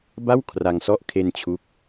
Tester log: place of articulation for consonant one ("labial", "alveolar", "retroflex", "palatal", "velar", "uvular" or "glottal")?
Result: labial